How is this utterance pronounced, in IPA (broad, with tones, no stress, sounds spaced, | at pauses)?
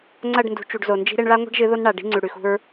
ŋ͡ǀ ɐ˦˨ ɖ n d ṳ˨ t͡ʃ u˨ ɖ z o˨ n d͡ʒ i̤˦ ɾ e˦ ɳ ɭ a˦ ŋʷ e̤˦ ɖ ʒ ɨ˨˦ ð o˦ n ɳ a˨ ɖ i̤˦ ŋ͡ǀ ʉ˨ ɽ ʉ˨ x ṳ˦ ɹ